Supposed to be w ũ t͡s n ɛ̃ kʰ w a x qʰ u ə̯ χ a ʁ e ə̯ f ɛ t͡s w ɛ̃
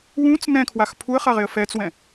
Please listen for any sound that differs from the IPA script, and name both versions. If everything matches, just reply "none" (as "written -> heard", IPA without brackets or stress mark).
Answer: qʰ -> pʰ